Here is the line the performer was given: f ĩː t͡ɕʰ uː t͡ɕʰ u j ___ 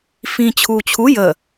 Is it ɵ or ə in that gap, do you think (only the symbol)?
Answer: ə